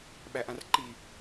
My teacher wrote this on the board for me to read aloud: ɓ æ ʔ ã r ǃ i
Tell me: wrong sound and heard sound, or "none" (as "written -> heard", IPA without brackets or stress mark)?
none